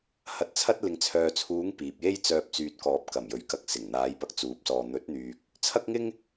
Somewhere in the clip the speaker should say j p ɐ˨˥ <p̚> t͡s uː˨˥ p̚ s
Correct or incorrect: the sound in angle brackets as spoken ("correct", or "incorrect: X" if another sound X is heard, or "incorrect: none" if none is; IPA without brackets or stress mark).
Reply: incorrect: k̚